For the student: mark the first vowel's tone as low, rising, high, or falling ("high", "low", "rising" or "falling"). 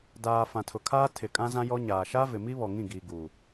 low